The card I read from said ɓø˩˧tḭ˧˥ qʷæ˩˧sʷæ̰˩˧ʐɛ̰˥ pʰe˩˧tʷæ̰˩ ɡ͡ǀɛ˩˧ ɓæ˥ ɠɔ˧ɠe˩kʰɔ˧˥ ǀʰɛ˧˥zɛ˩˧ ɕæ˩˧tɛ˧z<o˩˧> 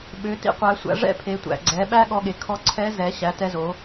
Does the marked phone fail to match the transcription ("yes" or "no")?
no